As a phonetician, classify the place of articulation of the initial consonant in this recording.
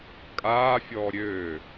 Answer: velar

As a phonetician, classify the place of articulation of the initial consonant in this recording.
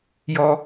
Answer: palatal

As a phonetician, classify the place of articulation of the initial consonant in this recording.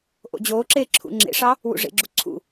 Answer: glottal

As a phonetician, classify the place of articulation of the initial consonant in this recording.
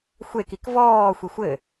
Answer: velar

